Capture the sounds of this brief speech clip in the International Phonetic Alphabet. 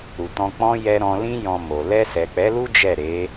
ɾ u˨ t ɔ̃˧ k͡p ɔ̃˦ j ɛ˧ ɾ ɔ̃˧ l ĩ˦ j ɔ̃˧ m o˨ l ɛ˧ s ɛ˨ k͡p ɛ˨˦ l u˦ d͡ʒ ɛ˦˨ ɾ e˨˦

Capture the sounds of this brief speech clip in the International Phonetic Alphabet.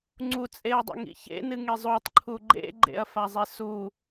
ŋ͡ǀ u t͡sʼ e ɐ̯ dˤ o̰ ŋ ḭ ç ḛ n ɨ ŋ e zˤ o tˤ ǃʰ u ɡ͡ǃ ḛ ɡ͡ǃ ḛ ɐ̯ f a zˤ e s u

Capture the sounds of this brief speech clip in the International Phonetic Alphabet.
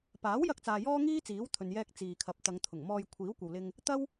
p aː˨˥ w j ɐ˧ k̚ t͡s aː˨ j ɔː˥ ŋ iː˥ t͡s iː˨˥ w t̪ʰ ɵ˨ n j ɛː˧ k̚ t͡s iː˨ kʰ ɐ˨ p̚ t̪ ɐ˨˧ ŋ t̪ʰ ʊ˨˩ ŋ m ɔː˧ j kʷʰ iː˨˥ w kʷ ɐ˨ w l ɪ˧ ŋ | t̪ ɐ˥ w

